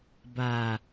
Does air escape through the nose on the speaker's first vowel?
no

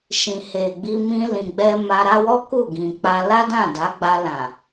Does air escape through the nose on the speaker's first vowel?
yes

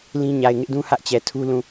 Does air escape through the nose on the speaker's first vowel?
yes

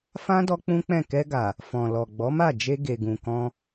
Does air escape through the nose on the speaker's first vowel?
yes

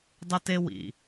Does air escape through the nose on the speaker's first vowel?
no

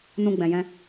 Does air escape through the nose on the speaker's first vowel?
yes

